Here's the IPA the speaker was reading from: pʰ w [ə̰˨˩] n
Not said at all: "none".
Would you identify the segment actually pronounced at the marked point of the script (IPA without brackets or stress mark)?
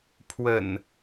ə̰˨˩